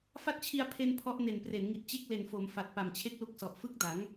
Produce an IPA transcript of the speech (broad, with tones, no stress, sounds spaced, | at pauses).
f a˦˥ t̚ t͡ɕʰ i˧ a̯ pʰ e˧ n pʰ ɔ˦˥ ʔ n e˨˩ n p r e˩˦ n ŋ i˨˩ t̚ t͡ɕ e˦˥ k̚ l e˨˩ n f o˩˦ m f a˨˩ t̚ p a˨˩ m t͡ɕʰ e˥˩ k̚ l u˦˥ k̚ s ɔ˨˩ ʔ f ɯ˦˥ k̚ d a˩˦ ŋ